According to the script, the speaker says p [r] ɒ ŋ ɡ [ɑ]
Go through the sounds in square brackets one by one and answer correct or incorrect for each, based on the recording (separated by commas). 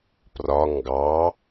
correct, correct